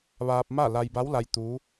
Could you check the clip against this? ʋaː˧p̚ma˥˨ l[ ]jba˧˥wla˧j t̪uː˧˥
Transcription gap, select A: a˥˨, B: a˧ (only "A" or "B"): B